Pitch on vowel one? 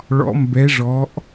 rising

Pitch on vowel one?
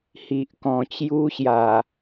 low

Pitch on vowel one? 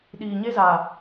low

